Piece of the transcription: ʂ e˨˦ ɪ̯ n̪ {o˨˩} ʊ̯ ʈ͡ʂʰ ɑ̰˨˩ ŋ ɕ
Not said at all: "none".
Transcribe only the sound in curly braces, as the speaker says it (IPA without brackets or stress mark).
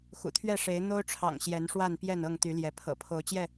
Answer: o˦